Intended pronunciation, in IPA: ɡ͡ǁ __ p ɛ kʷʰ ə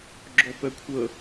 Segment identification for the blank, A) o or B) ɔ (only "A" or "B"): B